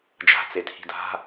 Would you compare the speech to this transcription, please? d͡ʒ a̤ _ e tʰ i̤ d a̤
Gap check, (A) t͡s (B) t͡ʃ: A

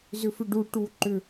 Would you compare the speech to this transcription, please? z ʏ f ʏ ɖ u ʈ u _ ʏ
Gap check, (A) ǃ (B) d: A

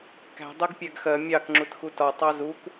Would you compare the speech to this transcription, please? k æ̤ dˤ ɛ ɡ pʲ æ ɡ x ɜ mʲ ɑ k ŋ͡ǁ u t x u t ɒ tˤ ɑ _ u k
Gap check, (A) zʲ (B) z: B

